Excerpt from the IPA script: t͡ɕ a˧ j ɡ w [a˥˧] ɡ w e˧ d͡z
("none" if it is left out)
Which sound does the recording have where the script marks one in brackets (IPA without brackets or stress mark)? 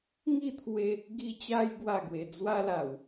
a˥˧